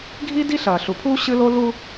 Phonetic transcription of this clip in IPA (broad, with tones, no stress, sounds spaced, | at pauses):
ɡʱ i˦ d i˦ ɬ ɐː˨ ɬ u˨ pʰ uː˦ ɕ ɨ˦ l o˦ l u˦